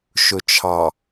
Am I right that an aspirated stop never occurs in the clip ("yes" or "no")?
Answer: no